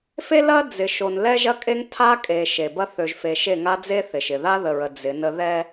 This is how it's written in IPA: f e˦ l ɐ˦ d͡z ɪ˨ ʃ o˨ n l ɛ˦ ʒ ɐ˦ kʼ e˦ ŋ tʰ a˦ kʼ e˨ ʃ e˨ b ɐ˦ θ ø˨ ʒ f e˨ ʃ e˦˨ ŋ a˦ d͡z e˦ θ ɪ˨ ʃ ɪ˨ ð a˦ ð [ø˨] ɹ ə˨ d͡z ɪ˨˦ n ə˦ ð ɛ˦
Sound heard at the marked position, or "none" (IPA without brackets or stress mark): ə˨